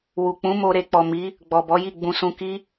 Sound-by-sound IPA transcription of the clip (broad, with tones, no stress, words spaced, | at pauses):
wu˨k͡pũ˨˦ mo˧ɾe˧k͡pɔ˨ mi˨˦ | ɡ͡bɔ˨bɔ˨˦ji˦˨ ɡ͡bũ˧sũ˧ ki˦